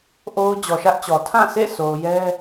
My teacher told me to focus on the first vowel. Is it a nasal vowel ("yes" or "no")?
no